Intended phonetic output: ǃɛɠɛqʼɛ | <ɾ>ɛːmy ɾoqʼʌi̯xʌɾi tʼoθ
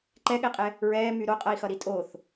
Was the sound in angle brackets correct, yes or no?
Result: no